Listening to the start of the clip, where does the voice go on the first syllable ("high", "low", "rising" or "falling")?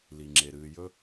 low